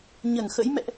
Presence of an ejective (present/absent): absent